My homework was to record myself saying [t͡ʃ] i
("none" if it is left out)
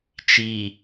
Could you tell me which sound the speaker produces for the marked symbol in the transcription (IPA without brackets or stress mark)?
t͡ʃ